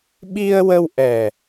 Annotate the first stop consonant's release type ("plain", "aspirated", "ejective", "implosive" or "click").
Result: implosive